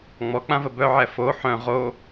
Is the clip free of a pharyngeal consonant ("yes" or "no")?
no